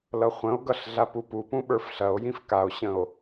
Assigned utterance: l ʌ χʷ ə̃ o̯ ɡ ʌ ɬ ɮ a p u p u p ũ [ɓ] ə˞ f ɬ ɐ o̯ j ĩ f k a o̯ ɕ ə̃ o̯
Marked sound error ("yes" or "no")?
no